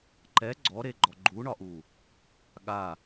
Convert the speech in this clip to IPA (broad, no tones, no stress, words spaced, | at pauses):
ǃɛ ɡ͡ǀɔɾeɡ͡ǃɔ ɡ͡ǃuɳɒʔu | ɠa